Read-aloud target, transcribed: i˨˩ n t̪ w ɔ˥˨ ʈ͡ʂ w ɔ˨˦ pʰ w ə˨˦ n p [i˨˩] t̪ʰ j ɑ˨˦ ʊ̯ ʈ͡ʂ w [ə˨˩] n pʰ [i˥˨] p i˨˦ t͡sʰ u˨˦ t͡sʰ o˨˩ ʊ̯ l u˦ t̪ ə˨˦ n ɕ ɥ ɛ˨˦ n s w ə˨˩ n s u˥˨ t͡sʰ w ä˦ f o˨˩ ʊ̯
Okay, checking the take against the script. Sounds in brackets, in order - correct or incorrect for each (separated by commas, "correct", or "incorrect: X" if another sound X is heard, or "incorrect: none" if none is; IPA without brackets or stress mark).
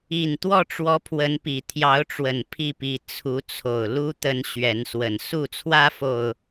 correct, correct, correct